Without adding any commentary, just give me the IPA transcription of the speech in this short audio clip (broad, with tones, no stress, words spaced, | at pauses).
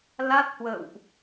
la˦˥t̚hwə̰ː˧˨wʔ